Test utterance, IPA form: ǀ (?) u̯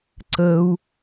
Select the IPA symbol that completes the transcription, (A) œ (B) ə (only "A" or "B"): B